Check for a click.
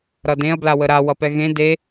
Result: absent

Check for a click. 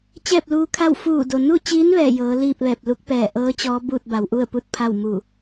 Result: absent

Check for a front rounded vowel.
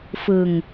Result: absent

